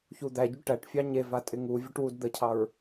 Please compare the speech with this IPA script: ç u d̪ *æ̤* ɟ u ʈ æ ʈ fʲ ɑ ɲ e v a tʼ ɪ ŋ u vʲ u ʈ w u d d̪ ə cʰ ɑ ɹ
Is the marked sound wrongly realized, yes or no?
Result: yes